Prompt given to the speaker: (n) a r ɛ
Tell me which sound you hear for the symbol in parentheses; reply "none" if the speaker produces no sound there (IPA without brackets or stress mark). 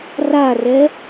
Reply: r